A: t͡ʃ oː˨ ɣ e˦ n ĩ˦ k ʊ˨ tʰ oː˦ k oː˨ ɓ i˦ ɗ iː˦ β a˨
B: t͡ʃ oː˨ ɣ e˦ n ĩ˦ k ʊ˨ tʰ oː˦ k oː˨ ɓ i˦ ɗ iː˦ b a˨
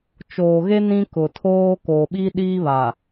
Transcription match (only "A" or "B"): A